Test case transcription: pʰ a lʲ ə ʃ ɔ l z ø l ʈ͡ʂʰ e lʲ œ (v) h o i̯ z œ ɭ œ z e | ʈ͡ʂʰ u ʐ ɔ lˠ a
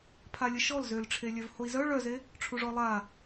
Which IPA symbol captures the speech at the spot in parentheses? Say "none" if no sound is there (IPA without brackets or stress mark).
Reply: v